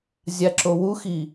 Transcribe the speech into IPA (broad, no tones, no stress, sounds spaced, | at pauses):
zʲ a ǁ o w u x i